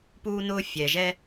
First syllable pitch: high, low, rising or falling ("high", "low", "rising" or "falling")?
high